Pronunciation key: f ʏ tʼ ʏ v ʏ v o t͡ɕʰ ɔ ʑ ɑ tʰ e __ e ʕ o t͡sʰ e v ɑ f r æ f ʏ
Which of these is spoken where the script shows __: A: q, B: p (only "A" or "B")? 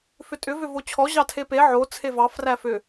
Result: B